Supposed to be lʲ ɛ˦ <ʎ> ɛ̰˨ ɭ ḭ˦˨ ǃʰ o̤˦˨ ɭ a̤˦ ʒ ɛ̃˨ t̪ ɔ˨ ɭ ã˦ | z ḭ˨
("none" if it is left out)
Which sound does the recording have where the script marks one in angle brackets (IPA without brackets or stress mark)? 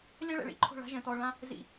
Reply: ɭ